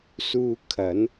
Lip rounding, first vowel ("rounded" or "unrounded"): rounded